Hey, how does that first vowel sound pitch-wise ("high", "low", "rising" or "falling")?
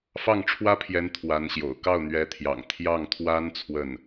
falling